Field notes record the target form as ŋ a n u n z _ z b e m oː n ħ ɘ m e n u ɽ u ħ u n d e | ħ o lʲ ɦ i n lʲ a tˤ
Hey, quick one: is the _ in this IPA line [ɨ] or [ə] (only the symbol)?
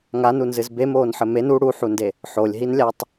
ɨ